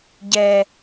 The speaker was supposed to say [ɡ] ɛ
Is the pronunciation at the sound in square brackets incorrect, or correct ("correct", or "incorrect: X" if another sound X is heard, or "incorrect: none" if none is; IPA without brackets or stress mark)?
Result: incorrect: ɟ